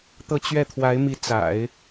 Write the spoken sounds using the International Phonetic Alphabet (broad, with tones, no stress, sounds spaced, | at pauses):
t̪ ɤ˥˧ t͡ɕ ɥ ɛ˥˩ t̪ʰ w a˧˥ ɪ̯ m i˧˥ t͡s a̰˨˩˦ ɪ̯